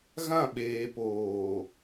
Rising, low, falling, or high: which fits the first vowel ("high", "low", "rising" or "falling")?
falling